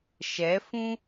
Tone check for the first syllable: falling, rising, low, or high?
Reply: rising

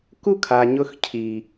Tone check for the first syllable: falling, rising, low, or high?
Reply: high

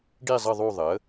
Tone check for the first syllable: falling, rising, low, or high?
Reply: falling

